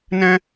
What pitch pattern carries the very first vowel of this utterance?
high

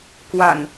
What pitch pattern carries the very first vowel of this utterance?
low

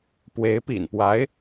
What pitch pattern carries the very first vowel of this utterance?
rising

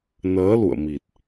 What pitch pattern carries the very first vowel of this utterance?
rising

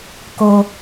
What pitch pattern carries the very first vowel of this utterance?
high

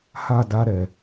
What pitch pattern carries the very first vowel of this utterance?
falling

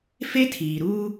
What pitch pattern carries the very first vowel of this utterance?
high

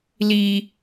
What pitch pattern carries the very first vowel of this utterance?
high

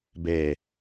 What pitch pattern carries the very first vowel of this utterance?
low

